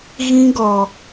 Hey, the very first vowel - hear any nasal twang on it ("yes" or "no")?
yes